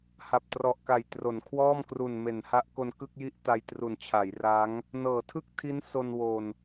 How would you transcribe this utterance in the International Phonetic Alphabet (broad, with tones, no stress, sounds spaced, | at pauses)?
h a˨˩ p̚ t r ɔ˨˩ ʔ k a˨˩ j t r o˩˦ n kʰ w ɔː˥˩ m k r u˨˩ n m e˩˦ n h a˦˥ ʔ k o˧ n k ɯ˥˩ k̚ j i˥˩ ʔ t a˧ j t r u˨˩ n t͡ɕʰ a˩˦ j r a˦˥ ŋ | n ɤː˩˦ tʰ ɯ˥˩ k̚ tʰ i˦˥ n s o˧ n w o˨˩ n